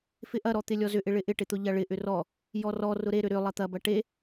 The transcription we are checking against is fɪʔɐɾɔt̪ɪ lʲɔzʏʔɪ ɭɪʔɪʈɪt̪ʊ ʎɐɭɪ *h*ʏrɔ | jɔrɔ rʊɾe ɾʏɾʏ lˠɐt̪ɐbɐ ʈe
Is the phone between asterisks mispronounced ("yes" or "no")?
yes